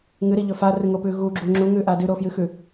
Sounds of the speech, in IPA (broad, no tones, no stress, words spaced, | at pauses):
ŋɨɾiʎɵ farɨŋopʉ ɣuɡ͡ǁu ŋ͡ǁuŋʉʔa dʉɾofjɨxʉ